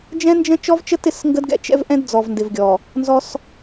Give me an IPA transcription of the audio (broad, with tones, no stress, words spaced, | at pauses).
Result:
d͡ʒɛ̃˦nd͡ʒə̃˦ t͡ʃɔ˦vt͡ʃə˦tɪ˦˨sŋɡə˦d ɡɛ̰˦t͡ʃɛ̰˦vʔɛ̃˦d d͡zɔ˨vndɪ˨vɡʲɔ˨ | nzɔ˦s